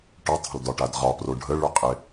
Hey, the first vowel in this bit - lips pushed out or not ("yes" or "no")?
yes